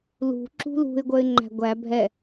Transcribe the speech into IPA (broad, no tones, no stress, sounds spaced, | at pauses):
l ṳ ǁ ṳ l ṳ ɪ̯ ɡʷ œ ɪ̯ ŋ͡ǃ æ̤ ɡʷ æ bʱ ɛ